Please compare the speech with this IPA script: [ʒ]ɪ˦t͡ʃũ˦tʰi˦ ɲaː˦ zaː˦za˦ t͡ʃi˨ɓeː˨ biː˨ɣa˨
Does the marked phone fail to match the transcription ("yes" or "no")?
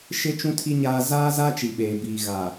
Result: yes